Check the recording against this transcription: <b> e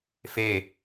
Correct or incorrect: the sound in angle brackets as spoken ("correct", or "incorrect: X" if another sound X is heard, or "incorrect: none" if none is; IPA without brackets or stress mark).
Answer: incorrect: f